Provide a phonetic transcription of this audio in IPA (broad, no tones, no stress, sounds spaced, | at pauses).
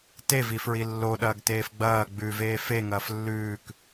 t e v i f ɹ i lː o ɗ ɐː ɡ t eː f ɡ͡b ɐː ɡ͡b ʉ v eː f e ŋ ɐː f lː ʉː k